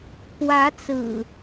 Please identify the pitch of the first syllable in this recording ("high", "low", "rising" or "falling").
rising